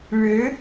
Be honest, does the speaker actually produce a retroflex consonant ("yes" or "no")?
yes